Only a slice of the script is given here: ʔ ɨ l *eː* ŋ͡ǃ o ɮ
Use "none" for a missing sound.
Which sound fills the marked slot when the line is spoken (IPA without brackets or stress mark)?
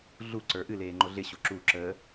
eː